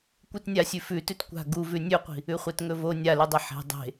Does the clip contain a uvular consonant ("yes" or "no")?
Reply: yes